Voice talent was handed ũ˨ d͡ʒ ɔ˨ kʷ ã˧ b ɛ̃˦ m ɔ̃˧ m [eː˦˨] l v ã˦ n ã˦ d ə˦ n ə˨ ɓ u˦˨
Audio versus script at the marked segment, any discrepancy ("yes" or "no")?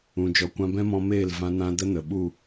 no